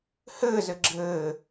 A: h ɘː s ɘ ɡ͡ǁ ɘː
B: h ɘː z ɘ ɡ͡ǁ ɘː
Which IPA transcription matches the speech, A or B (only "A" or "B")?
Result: B